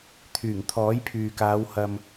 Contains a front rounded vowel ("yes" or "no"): yes